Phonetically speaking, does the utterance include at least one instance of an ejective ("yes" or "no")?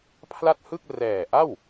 no